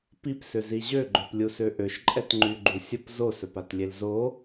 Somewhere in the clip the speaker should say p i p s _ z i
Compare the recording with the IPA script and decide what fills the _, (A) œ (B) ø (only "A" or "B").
B